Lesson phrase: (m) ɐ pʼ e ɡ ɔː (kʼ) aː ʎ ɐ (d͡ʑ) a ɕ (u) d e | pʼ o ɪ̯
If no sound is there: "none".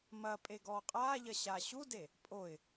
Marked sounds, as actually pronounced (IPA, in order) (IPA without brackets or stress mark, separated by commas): m, qʼ, ɕ, u